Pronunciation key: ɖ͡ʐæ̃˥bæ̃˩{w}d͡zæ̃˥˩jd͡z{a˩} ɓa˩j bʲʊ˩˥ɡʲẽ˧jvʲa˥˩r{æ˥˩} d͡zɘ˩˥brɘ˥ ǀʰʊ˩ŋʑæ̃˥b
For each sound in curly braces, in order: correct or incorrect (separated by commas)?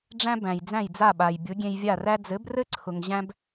incorrect, incorrect, incorrect